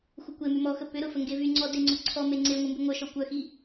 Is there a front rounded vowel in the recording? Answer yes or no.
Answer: yes